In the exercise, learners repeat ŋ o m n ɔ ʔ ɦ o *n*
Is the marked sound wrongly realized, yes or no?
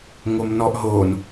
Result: no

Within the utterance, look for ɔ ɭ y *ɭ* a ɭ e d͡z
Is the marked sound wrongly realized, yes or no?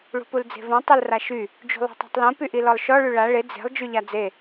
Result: no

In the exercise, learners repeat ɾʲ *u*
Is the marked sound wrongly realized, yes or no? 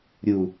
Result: no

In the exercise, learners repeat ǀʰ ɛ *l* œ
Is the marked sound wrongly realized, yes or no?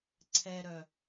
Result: yes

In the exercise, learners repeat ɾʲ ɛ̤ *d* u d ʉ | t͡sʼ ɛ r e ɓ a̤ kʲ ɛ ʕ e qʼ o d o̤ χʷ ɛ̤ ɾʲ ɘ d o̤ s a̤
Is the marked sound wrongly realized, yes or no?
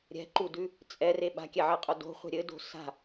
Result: yes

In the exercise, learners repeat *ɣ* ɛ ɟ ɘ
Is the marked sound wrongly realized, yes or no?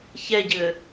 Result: yes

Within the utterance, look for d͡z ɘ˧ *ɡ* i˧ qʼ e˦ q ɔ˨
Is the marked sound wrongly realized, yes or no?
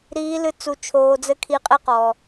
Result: yes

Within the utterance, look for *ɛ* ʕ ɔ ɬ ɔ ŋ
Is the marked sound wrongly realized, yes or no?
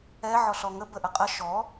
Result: no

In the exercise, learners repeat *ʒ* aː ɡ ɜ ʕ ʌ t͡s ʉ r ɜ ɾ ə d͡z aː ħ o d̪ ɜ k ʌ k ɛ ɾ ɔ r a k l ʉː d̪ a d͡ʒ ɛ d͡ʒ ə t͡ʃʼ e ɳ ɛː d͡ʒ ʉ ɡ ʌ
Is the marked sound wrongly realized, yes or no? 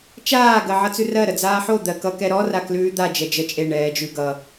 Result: yes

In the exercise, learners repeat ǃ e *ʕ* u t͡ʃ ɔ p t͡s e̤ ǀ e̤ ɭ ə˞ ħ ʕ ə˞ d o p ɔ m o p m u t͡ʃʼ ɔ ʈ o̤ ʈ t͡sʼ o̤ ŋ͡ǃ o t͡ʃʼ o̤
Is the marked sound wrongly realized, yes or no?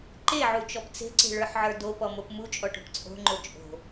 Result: no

